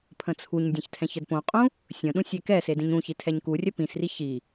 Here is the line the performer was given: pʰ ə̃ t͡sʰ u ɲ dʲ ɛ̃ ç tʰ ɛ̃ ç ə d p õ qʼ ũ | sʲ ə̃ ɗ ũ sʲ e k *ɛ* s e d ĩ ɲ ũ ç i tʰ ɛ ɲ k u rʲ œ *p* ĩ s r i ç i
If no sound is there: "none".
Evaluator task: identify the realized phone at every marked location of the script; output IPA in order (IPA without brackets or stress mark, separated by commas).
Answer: ɛ, p